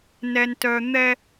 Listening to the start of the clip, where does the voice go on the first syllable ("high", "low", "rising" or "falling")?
low